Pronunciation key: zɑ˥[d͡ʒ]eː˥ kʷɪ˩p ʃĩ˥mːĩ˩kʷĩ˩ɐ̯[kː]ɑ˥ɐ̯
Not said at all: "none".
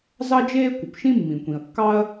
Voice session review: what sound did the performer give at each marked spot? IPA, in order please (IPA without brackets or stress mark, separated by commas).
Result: d͡ʒ, kː